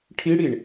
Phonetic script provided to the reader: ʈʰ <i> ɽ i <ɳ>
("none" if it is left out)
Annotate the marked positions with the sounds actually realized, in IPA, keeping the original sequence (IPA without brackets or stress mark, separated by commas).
i, ɳ